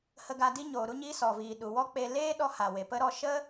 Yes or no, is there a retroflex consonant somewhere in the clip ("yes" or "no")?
no